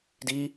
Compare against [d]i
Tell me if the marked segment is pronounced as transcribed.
yes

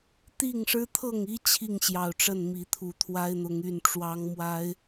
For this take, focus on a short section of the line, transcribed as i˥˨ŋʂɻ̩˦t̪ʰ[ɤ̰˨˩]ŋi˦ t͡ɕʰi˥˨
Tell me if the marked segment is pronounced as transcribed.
no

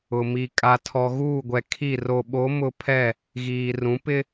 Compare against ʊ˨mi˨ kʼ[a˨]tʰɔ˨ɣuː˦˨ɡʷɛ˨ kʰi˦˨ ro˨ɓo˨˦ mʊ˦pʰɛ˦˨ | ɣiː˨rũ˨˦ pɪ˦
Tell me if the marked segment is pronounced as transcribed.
yes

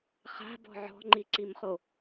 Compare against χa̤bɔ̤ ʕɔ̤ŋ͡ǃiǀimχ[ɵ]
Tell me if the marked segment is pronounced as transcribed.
no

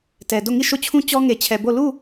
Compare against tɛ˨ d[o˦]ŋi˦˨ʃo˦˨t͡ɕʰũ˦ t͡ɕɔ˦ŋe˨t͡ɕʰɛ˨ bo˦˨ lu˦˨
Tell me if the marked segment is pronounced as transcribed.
no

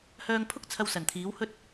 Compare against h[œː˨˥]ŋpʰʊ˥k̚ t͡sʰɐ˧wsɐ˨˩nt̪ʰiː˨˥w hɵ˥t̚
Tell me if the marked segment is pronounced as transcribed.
no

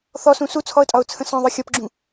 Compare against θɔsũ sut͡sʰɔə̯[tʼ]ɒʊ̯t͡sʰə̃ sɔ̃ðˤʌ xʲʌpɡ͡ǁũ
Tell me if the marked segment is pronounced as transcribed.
yes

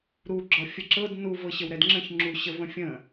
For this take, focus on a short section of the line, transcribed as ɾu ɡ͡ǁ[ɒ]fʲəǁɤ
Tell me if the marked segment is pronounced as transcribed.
yes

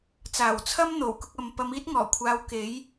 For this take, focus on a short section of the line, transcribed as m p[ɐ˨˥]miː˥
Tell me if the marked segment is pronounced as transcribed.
no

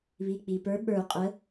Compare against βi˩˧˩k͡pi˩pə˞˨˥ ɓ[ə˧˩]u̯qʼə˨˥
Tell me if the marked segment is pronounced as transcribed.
no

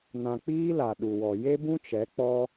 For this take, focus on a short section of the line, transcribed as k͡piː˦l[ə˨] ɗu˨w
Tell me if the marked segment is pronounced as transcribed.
no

